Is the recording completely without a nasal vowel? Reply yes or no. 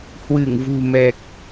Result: yes